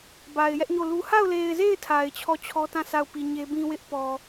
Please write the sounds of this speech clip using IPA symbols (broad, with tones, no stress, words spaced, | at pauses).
ba˨ɪ̯jɛ˦ʔɲo˦˨lu˦ ha˦˨ʊ̯le˨ɪ̯ze˦˨ɪ̯ tʰa˨ɪ̯t͡ɕʰɔ˦˨t͡ɕʰɔ˦tã˦˨ sʰa˦˨ʊ̯pi˨ɲe˦ bĩ˦wɪ˦ʔ pɔ˨